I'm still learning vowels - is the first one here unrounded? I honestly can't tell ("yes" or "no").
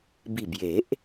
yes